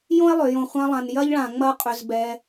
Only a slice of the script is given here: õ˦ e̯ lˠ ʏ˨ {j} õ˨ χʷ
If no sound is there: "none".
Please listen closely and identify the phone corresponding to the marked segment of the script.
j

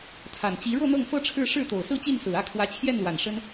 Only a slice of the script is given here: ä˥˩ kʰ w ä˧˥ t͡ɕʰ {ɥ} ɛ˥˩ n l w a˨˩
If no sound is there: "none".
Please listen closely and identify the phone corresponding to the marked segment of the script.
j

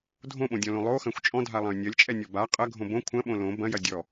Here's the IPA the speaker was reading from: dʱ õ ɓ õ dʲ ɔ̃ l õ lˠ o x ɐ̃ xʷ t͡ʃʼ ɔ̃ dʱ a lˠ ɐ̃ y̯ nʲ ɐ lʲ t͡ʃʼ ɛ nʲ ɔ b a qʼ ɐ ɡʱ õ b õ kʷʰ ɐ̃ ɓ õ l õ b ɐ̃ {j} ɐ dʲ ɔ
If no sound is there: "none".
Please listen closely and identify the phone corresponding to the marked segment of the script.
j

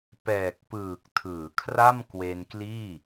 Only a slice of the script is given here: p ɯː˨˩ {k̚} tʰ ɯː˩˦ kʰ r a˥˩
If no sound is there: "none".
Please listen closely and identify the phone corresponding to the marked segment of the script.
k̚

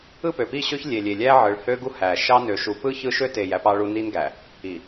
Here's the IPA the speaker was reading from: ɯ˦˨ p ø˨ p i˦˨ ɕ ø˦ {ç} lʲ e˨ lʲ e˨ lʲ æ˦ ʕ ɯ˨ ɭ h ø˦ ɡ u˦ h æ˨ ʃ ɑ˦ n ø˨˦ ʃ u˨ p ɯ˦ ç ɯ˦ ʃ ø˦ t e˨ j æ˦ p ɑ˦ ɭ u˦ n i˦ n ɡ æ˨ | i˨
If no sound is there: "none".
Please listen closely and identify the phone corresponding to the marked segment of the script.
ç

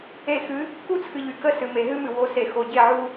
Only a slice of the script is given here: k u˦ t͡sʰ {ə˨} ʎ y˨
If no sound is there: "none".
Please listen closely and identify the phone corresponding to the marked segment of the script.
ɨ˨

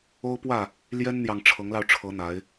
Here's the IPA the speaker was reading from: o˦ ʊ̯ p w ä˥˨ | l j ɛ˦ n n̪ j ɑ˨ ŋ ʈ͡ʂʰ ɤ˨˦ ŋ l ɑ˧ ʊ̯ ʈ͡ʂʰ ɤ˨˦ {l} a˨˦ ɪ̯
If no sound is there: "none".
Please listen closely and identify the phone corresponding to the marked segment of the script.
n̪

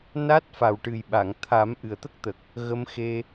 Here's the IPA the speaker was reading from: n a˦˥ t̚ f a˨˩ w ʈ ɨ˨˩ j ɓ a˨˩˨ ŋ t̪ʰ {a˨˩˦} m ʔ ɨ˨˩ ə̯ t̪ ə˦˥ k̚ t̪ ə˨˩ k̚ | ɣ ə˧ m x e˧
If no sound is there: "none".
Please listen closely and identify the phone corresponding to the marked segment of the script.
a˨˩˦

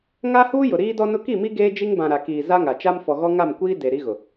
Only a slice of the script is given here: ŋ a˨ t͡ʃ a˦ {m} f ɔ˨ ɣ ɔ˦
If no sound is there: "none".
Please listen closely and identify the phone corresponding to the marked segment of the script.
m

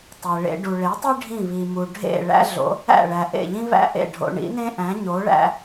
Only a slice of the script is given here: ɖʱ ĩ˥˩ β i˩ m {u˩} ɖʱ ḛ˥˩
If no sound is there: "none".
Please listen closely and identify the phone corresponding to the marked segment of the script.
u˩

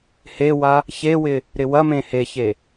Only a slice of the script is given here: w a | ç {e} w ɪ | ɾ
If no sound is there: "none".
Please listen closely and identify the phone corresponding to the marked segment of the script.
e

